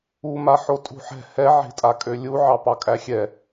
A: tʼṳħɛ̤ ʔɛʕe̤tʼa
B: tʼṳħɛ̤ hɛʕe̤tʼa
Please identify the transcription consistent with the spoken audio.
B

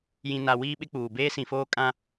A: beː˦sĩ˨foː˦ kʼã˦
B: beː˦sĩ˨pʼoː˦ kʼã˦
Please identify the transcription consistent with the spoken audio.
A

